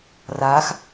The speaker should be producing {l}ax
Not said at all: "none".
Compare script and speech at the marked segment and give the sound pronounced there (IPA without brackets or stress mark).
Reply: r